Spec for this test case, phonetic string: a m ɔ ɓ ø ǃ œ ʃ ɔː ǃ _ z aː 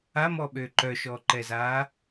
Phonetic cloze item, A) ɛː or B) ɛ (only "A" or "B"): B